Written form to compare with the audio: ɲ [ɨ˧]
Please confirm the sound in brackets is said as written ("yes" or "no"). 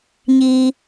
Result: no